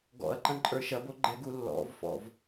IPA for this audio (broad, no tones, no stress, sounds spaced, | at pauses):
ɡ ɔ̰ ɐ̯ ǃ ɐ̃ ǃʼ ə˞ ʃ ɐ b o ɡ͡ǃ ɛ ɡ u lː ɔ̰ v f ɔ̰ v